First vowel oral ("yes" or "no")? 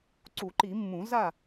yes